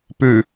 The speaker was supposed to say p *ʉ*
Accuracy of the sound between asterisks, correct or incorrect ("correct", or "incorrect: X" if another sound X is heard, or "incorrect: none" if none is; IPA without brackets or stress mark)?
correct